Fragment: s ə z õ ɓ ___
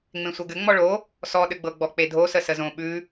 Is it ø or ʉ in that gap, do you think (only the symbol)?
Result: ʉ